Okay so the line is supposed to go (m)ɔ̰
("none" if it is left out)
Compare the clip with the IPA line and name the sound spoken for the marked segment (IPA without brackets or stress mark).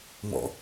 m